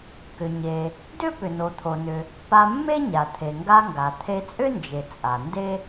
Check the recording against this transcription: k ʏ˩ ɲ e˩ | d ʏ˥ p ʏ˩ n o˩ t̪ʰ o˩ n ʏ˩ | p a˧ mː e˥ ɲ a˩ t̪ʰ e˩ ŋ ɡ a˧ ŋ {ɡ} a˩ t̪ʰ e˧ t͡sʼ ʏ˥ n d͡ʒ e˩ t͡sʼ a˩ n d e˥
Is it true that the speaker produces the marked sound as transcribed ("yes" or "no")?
yes